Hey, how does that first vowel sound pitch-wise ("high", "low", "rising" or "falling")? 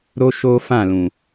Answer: high